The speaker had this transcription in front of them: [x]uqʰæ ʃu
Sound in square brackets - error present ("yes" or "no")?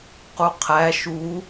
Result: yes